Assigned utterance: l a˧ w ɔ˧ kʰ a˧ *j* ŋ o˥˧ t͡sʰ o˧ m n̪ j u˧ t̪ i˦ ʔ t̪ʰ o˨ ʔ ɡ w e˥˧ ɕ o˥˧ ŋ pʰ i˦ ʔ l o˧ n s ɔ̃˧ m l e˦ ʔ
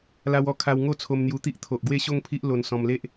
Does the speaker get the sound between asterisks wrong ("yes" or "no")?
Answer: yes